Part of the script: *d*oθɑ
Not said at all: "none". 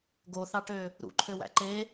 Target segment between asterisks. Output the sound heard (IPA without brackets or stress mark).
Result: ɡ